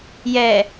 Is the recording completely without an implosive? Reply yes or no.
yes